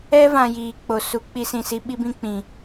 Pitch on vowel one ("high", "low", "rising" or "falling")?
high